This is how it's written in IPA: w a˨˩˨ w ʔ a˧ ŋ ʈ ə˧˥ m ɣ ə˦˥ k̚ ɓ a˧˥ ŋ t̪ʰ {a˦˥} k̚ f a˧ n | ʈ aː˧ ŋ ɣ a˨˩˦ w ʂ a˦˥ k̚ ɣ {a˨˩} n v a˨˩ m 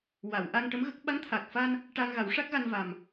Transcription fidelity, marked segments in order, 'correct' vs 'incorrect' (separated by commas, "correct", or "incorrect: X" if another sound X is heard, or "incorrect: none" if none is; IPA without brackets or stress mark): incorrect: a˨˩, incorrect: a˧